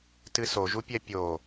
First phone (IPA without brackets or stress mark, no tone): t